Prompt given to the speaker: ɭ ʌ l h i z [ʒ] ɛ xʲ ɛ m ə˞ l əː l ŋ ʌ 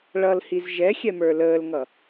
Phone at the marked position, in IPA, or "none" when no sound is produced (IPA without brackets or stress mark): ʒ